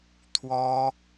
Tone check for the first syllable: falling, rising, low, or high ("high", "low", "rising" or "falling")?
high